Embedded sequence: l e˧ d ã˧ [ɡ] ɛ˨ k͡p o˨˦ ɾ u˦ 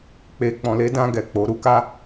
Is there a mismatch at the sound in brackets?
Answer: no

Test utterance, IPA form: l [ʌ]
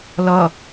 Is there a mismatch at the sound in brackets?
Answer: no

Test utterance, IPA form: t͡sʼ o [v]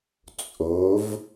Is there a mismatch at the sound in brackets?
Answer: no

